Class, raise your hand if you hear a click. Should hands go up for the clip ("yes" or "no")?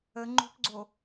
yes